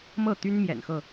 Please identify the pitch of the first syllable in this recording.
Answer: falling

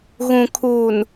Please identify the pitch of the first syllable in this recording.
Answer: low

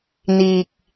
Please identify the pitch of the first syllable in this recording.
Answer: low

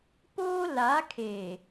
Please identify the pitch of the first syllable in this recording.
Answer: high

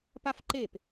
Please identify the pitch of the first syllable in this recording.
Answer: high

